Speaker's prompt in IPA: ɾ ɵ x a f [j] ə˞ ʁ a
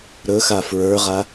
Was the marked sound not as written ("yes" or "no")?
yes